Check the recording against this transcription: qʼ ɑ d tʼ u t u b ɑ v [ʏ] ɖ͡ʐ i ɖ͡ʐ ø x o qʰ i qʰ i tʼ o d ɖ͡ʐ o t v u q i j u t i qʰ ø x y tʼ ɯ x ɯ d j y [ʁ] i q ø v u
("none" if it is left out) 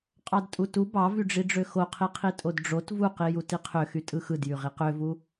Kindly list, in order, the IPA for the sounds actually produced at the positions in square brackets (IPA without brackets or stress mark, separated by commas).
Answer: y, ʁ